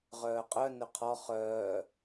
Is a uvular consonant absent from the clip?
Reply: no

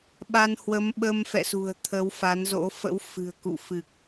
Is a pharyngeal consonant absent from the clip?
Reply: yes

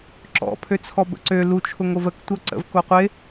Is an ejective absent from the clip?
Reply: yes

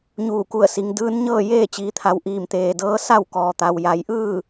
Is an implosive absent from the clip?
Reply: yes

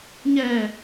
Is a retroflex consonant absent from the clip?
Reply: yes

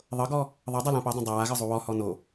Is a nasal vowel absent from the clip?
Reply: no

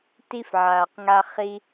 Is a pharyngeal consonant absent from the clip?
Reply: no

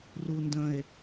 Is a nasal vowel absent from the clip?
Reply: no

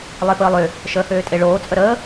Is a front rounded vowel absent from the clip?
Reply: no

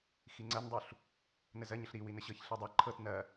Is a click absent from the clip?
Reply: no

